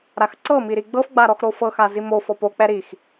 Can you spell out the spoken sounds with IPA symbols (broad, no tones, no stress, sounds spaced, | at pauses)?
ɾ a x ǀ ɤ m i ɾ i ɡ͡b ɤ f ɡ͡b a ɾ ɔ x ɾ o f ɤ x a z i m o f ɔ p o k͡p ɛ ɾ i x